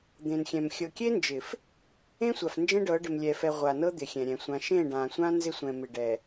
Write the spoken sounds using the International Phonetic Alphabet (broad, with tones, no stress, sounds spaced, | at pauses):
d̪ ẽ˨ n xʲ ɛ̃˨ m xʲ ɤ˨ kʲ e˦ n d͡ʒ ɪ˨ f | ẽ˦ sʷ a˨ f n d͡ʒ ẽ˦ ɖ ɤ˨˦ ɖ ɪ˨ m lʲ ɛ˨ f ɛ˨ ʁʷ a˨ n ɤ˦ d̪ ɪ˨ xʲ ɛ̃˨ ɾʲ ɛ̃˨ sʷ ã˦ ʃ ẽ˦˨ ɖ ã˨ sʷ ã˦ n z ɪ˦ sʷ ɛ̃˨ m ɪ˨ ɖ ɛ˨